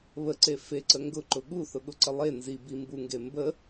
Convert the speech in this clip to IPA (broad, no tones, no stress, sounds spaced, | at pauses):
β ə ǀ e f e ǀ ə ŋ ɡ ʊ ǃ ʊ ɠ u θ ʊ ɠ ʊ ǀ ə lˠ e n z i b i m b u ŋ ɡ e m b ə